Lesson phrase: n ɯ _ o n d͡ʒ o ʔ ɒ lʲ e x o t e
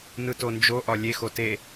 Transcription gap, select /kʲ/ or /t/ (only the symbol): t